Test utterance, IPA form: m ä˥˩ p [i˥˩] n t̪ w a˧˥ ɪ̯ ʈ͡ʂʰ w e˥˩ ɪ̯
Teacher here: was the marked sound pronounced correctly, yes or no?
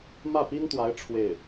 no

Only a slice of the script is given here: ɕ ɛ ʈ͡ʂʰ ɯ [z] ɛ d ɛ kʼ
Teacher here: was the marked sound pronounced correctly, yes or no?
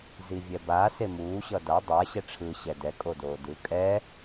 no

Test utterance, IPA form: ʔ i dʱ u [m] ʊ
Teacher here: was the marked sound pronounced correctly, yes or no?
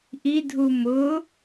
yes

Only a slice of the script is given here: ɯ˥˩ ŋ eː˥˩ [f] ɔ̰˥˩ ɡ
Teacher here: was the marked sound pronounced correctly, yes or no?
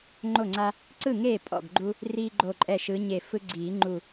no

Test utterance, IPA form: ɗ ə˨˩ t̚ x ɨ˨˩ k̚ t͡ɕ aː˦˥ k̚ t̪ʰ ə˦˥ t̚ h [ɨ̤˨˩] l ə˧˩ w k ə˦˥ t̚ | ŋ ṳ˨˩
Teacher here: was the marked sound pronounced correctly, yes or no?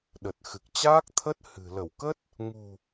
yes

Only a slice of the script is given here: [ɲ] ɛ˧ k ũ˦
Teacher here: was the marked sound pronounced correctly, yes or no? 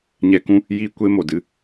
yes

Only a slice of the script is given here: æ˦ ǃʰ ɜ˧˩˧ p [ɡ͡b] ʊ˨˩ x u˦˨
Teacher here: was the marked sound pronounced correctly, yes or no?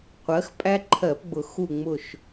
yes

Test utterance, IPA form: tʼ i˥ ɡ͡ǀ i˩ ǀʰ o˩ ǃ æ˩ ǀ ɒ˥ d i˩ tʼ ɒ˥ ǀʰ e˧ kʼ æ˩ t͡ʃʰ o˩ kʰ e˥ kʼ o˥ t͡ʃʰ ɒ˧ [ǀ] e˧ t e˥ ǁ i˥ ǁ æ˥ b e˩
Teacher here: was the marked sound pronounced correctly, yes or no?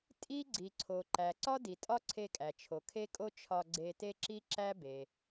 no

